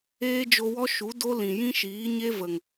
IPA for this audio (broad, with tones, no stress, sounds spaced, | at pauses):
eː˦ d͡ʒ o˧ w ɔ˦ ʃ u˨˦ d o˦ l ĩ˨ j ĩ˦ ʃ iː˨˦ ɲ e˦ v ə˨ ŋ